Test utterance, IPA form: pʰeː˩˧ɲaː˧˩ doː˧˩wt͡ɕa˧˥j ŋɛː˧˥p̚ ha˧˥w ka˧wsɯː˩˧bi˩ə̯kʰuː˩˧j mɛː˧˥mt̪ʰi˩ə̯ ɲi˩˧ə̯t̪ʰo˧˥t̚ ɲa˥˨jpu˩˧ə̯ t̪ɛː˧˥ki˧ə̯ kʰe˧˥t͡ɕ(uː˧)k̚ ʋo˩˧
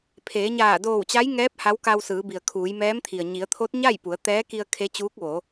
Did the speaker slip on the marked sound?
yes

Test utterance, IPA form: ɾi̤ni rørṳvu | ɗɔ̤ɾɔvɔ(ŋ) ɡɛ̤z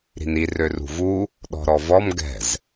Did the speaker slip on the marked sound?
yes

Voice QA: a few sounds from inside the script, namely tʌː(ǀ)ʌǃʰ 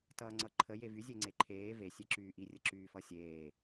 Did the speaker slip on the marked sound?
yes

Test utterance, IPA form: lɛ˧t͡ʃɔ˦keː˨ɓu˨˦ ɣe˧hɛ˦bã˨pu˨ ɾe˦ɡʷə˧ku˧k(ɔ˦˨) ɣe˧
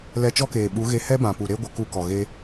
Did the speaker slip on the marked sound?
yes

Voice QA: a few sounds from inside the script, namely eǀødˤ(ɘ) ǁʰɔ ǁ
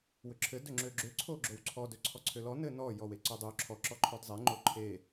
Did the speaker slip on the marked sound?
yes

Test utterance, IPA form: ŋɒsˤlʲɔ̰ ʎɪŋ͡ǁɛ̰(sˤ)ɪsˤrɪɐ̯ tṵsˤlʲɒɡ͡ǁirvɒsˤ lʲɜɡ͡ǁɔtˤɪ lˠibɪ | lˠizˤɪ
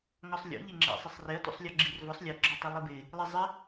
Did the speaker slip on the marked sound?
no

